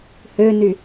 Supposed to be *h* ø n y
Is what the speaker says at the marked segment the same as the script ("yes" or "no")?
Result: yes